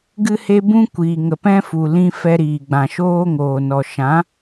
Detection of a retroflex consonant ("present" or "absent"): absent